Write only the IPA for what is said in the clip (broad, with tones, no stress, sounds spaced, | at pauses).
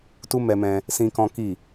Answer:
t u˦ m ɛ˧ m ɛ̃˧ | s ĩ˦ k ɔ̃˦ k i˦˨